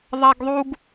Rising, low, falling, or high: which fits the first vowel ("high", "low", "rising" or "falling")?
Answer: high